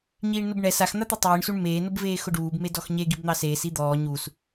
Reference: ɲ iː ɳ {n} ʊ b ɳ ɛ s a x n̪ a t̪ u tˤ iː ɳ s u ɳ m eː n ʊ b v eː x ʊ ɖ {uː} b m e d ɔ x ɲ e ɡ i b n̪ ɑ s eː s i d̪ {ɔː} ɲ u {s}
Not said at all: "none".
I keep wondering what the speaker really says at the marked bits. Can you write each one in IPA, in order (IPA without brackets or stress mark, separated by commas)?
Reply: n, uː, ɔː, s